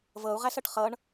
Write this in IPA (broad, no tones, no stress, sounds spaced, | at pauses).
v ɤ u̯ ʁ æ s ɤ ʈ χ ɤ ɳ